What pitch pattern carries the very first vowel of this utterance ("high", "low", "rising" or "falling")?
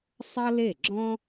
high